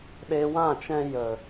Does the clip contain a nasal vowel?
yes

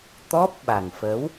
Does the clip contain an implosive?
yes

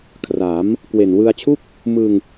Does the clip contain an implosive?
no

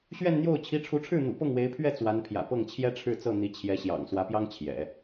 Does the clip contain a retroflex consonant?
yes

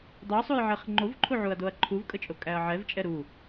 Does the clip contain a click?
yes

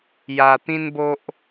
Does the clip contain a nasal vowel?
yes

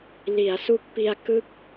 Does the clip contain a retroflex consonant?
no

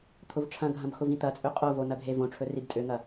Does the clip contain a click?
no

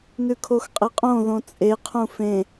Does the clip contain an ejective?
yes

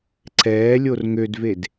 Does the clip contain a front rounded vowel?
yes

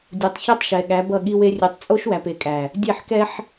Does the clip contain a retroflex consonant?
no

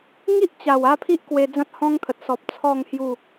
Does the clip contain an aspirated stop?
yes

